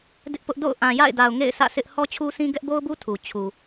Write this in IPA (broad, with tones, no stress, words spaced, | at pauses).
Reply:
dɪ˦ʔpʊ˦ʔ do̰˦˨ʊ̯ʔã˨ja̰˦˨ɪ̯da˨ʊ̯ ŋḛ˦˨ɪ̯sä̰˦˨sɪ˦ʔ hɔ˦t͡ɕʰu˦sĩ˦ ɡɛ˦ʔbo˦ʊ̯bu˦ tʰu˨t͡ɕʰu˨